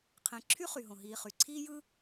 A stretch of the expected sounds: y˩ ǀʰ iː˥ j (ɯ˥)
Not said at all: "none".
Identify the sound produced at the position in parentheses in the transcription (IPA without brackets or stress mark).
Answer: ɯ˥